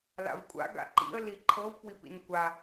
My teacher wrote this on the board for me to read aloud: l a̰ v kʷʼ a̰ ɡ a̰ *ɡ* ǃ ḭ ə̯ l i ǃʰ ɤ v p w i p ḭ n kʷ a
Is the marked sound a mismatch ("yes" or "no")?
yes